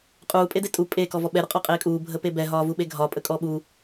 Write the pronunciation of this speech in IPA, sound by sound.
qʼuː pʼedetʼu pʼeːkɔ vɔɓɛɾʊ qʼɒqʼeːkʼuː bʱəpebɛɦɒː vuɓeɡʱɒ pʼəkʼɔːɓu

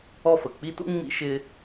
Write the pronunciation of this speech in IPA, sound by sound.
ɔ˦fə˩k͡pi˥tṵ˥ ŋ͡mḭ˦ʃɪ˦

